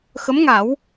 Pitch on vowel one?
rising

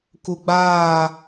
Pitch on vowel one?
low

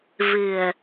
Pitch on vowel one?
low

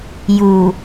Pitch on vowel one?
low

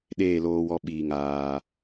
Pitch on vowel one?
falling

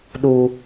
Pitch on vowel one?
low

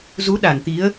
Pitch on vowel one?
rising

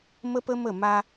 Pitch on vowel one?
high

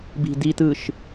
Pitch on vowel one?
low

